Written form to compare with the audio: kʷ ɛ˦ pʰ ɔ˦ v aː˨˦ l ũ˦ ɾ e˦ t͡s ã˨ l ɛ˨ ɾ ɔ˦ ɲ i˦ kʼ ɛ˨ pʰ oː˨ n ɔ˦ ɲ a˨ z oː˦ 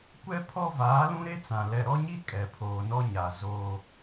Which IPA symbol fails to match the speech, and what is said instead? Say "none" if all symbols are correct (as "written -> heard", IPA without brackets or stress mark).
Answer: none